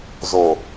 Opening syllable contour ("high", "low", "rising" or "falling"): low